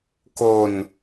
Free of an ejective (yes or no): yes